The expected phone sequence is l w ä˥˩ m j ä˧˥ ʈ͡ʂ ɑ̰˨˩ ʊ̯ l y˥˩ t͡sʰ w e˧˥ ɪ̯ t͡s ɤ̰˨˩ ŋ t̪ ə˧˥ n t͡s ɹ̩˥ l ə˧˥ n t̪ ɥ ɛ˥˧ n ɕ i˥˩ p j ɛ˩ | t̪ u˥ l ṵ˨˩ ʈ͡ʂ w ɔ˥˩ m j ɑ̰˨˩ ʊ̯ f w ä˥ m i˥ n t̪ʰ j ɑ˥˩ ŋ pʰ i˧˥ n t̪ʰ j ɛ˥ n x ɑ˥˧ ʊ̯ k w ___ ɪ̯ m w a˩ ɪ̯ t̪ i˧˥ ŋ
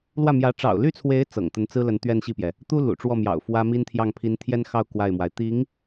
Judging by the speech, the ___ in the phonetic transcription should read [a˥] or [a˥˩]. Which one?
a˥˩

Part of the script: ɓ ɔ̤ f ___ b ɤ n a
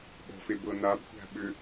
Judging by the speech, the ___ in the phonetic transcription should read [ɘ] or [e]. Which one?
e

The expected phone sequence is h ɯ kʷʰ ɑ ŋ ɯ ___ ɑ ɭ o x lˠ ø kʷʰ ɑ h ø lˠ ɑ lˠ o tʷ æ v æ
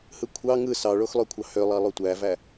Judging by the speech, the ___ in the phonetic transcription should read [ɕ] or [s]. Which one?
s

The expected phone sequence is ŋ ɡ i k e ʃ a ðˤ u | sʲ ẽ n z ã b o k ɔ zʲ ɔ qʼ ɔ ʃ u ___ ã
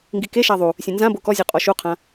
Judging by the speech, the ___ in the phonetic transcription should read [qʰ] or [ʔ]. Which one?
qʰ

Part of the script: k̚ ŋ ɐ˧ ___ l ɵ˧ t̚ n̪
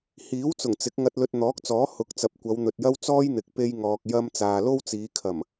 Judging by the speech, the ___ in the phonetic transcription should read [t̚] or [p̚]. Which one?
t̚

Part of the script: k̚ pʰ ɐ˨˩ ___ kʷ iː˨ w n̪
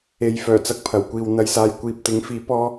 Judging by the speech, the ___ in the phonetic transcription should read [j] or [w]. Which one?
w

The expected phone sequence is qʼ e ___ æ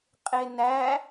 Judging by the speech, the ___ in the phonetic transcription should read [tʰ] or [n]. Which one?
n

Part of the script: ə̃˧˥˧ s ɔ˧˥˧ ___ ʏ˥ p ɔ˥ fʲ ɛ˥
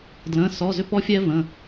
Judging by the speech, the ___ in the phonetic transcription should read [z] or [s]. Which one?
z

